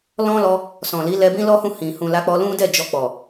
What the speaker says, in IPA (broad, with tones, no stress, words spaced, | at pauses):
lɔ̃˦lɔ˧ | sɔ̃˨ li˨˦ lɛ˧bĩ˦lɔ˦hũ˦˨ hĩ˨ hũ˨la˧k͡pɔ˧lũ˦ dɛ˦˨ d͡ʒɔ˧k͡pɔ˨